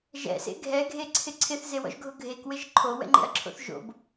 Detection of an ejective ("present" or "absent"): absent